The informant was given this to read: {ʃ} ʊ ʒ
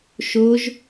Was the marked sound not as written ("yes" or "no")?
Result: no